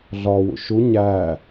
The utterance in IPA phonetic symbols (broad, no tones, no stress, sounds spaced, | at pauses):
ɮ ɒ w ṵ ʃ u ɲ æ